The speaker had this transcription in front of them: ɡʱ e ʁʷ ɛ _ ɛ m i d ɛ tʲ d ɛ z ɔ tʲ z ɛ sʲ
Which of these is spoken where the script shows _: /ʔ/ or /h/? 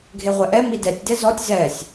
ʔ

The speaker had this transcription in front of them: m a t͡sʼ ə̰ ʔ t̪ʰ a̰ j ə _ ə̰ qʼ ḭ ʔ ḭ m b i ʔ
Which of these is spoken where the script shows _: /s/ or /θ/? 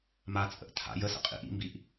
s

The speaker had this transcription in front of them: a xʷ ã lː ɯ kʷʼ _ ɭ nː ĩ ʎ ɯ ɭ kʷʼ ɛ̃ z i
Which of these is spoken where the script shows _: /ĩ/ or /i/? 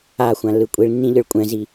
i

